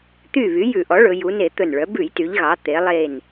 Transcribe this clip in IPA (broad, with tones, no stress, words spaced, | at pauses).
t̪y˧˩ βy˩˥jʉ˧˩˧ʔɔ˩˥ɭɵ˩˧ ju˩˧ne˧˩˧ t̪ɵ˧˩nɭœ˩˥ bʉ˧˩˧jty˩˧ʎɣɑ˩˧ t̪e˩˧lˠe˧˩n